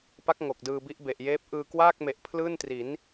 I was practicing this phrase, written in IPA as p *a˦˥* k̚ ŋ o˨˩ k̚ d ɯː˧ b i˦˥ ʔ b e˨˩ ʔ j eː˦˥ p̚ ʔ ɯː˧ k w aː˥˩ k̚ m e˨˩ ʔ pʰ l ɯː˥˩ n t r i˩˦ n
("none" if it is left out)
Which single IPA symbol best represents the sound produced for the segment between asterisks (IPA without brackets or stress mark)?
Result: a˦˥